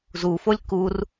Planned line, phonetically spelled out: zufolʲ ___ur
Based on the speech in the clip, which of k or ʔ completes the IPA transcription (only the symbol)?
k